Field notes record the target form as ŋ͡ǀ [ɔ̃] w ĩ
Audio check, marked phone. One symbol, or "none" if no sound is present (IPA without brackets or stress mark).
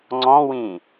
ɔ̃